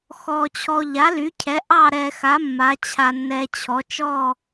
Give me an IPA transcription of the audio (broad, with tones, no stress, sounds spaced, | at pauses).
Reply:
x ɔ˧ t͡ɕʰ ɔ˧ ʎ a˨˥ l y˨˥ cʰ ɛ˨˥ ʔ ɑ˥˧ ɾ ɛ˧ x a˨˥ mː a˨˥ t͡ɕʰ a˧ nː ɛ˧ t͡ɕʰ ɔ˨˥ t͡ʃ ɔ˥˧